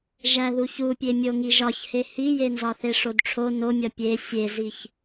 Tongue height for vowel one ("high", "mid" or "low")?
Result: low